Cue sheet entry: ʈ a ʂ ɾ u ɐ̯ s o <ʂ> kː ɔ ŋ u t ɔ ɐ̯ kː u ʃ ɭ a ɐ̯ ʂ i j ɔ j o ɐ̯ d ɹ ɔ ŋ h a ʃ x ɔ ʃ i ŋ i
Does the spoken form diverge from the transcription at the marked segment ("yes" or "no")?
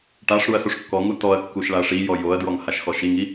no